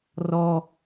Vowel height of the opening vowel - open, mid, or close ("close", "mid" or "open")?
mid